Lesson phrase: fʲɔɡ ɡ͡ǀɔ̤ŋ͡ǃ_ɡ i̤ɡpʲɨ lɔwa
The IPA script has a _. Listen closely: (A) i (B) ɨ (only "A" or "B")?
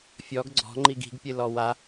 A